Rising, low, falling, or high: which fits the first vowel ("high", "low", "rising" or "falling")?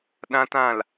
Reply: high